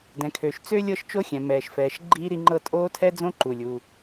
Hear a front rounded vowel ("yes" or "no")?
yes